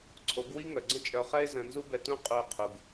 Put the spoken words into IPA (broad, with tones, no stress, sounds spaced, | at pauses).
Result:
ǀʰ o˨˦ ɡ w i˦ ŋ œ˨ ɡ͡ǀ ə̃˦ t͡ʃʼ œ˧ χ ɛ˦ ɪ̯ z ə̃˧ n z u˦ b ɛ˧ t ũ˦ qʼ u˧ ə̯ qʰ u˨ ɡ